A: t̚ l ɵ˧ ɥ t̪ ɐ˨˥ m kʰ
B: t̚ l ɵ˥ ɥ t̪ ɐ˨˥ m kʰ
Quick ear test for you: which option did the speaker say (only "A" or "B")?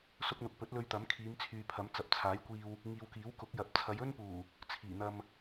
A